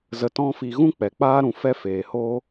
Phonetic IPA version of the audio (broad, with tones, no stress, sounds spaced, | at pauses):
z ə˨ t ɔ̃˧ f i˨ ɣ ũ˦ k͡p ɛ˨ k͡p aː˦ ɾ ũ˨ f ɛ˦ f eː˨ h o˦